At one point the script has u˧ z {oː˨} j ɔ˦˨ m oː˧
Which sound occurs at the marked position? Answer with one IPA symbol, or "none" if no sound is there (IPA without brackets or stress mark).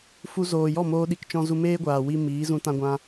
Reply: oː˨